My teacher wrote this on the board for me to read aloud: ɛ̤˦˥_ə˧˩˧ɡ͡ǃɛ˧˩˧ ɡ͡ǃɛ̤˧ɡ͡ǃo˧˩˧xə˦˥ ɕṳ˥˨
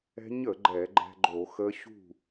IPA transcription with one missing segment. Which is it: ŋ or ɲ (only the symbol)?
ɲ